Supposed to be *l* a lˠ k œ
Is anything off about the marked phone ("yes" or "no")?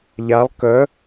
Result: yes